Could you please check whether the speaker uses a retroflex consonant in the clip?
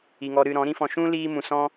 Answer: no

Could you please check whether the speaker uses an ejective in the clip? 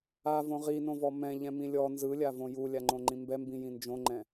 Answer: no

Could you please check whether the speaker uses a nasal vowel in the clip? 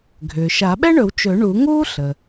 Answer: no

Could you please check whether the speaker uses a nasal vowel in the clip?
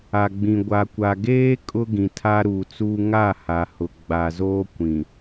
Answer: yes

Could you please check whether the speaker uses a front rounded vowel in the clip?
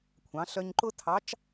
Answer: yes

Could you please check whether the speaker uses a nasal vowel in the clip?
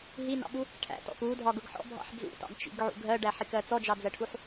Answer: no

